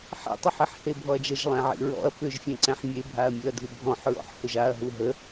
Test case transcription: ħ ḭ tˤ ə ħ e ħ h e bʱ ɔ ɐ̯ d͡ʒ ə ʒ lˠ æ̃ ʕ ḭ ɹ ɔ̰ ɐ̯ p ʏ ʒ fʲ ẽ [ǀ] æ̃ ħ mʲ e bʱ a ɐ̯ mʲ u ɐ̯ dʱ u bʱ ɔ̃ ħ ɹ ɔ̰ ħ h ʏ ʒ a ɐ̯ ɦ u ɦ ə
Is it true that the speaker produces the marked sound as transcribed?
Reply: yes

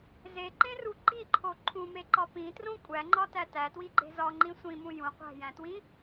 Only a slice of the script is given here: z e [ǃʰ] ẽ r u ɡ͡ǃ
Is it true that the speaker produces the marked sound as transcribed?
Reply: no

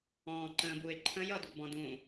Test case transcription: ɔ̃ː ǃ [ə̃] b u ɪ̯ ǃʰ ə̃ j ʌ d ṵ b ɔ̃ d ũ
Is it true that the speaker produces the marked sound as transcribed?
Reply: no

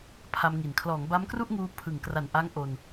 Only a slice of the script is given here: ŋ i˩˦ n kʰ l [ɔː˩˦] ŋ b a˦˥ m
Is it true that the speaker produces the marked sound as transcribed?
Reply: yes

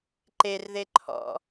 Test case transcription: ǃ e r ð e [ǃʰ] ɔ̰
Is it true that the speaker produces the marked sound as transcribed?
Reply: yes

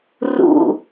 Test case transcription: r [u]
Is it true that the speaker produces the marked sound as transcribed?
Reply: no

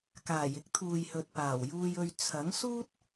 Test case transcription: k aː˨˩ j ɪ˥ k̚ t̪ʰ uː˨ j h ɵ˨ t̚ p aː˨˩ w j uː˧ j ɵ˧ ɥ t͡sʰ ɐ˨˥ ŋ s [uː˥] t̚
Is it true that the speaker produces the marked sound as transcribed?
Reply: yes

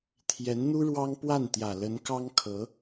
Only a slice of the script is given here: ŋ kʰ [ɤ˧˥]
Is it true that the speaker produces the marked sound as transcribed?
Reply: yes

